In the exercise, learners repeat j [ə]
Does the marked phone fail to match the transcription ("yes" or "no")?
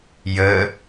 no